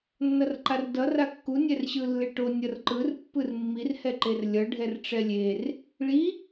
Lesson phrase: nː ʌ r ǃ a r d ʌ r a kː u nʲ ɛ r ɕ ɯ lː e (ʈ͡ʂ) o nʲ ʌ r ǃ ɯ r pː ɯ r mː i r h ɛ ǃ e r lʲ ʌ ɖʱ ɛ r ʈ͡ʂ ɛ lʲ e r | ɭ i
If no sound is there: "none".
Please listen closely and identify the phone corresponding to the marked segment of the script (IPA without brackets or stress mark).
ʈ